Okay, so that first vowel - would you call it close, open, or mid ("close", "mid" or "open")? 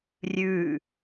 close